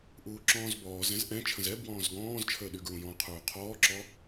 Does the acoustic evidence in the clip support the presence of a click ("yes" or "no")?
yes